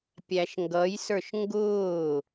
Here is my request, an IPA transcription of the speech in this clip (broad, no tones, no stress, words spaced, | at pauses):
pʲæʃŋɡʌjsə˞ʃ ŋɡʊː